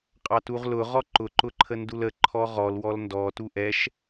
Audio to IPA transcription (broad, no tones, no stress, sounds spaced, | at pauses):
qʼ ɑ t u ʁ l ʊ ʁ ɔ ǃ ʊ ǃ ʊ ǃʰ ə n d u l ə ǃʰ ɔ ʁ ɔ l w ɔ l n d ɔ t u ʔ ɛ ʃ